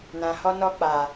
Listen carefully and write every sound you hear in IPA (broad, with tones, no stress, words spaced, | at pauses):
nã˨hɔ˦ nɔ˦k͡pa˨